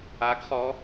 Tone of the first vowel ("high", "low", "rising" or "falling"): rising